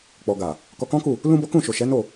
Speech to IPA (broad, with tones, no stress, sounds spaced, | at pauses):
k͡p ɔ˨ ɡ a˨ | k ɔ˧ k ɔ̃˦ k u˦˨ | l ũ˦ b ɔ˦ k ũ˦˨ ʃ o˨ ʃ ɛ˨˦ n o˦˨